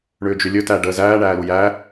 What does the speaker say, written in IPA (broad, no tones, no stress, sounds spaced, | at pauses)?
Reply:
ɳ ʏː d͡ʒ ʏ lʲ ɵ t æ ɖ əː z æː ɳ æː l u j æ